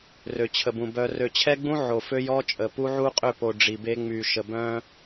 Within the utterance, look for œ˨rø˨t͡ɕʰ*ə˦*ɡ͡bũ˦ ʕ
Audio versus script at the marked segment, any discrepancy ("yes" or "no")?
yes